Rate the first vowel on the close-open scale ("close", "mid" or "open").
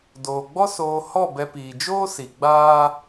mid